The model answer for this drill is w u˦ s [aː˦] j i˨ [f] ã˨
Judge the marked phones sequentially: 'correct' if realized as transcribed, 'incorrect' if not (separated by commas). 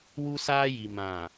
correct, incorrect